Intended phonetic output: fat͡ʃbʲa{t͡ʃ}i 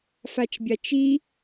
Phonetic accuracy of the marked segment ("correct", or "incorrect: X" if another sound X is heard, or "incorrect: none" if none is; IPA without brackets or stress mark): correct